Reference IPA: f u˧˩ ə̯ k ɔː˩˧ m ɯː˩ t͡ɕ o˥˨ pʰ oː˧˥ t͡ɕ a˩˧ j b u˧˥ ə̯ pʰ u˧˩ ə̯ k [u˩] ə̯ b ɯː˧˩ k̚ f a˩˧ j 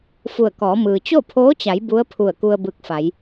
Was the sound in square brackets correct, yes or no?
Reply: no